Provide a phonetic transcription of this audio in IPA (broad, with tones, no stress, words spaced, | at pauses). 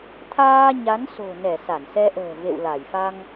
t̪ʰaː˧ ɲa˨˦nso̤˨˩nɛ˧˩ sa˧˩nsɛ˧ʔə̤ː˨˩ vḛ˧˨wla˧˩jfa˧ŋ